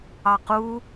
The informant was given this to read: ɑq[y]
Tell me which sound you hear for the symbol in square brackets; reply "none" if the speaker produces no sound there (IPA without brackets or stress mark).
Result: u